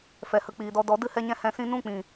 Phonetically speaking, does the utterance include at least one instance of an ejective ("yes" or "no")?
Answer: no